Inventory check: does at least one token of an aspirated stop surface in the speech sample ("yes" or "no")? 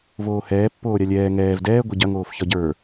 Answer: no